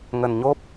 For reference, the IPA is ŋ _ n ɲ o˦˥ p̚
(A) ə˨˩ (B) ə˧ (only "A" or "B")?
A